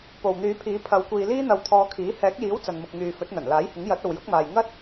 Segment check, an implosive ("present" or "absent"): absent